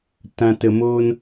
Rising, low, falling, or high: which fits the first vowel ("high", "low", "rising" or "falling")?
low